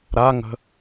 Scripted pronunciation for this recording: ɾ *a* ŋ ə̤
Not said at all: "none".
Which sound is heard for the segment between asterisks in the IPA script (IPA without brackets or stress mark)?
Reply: a